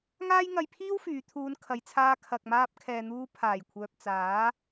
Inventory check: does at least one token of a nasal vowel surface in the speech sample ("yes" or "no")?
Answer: no